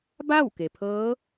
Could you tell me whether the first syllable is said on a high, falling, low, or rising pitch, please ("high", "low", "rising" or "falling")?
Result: falling